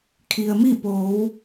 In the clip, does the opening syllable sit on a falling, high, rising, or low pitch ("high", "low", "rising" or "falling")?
low